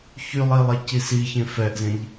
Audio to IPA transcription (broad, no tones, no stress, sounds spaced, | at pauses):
ç y lˠ i lˠ e c i s i ç ẽ f ɛ ʔ z ẽ ʎ